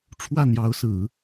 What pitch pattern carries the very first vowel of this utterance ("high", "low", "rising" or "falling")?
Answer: falling